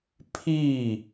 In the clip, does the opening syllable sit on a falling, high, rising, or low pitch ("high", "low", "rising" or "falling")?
falling